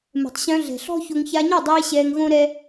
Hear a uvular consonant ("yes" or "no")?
no